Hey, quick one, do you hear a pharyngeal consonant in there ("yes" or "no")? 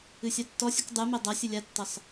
no